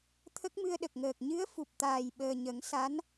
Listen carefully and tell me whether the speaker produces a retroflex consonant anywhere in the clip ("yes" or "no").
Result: no